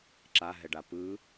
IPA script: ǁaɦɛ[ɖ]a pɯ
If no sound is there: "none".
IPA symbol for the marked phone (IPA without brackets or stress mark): ɖ